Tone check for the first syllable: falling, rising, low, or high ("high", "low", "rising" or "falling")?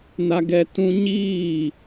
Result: high